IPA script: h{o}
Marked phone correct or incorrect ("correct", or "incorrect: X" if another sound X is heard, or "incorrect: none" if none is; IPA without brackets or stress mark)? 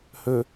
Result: incorrect: ɵ